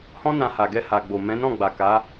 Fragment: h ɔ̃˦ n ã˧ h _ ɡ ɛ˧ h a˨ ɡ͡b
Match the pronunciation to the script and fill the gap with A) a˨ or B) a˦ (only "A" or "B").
A